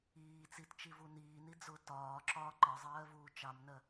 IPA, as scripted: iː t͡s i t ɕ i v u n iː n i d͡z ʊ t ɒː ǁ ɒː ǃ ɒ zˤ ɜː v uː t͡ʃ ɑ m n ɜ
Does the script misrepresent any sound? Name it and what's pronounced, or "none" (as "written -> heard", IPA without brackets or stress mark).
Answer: ɕ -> t͡ʃ